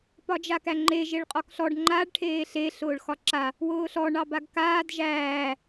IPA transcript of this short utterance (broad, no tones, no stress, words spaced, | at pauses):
pɒd͡ʒakæŋ͡ǃe ʒeɭqʼɒkɬɔɖ ŋ͡ǃaɖ ʈʰeːɬe ɬʊːɭxɒǁa | wʊːɬɔ ɳɑbaɡkaːd ʒæː